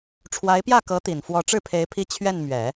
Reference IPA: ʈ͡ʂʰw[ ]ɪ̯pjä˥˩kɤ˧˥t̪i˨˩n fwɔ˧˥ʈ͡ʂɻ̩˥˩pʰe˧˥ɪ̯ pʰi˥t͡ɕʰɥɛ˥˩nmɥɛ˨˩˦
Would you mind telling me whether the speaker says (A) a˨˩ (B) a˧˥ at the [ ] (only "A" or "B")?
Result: B